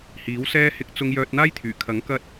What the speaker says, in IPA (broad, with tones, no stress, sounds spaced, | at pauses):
h iː˨˥ w s ɛː˥ h ɪ˧ k̚ t͡s ʊ˧ ŋ j œː˧ t̚ n̪ aː˥ j t̪ʰ yː˨˩ kʰ ɐ˨˥ ŋ k ɐ˧ t̚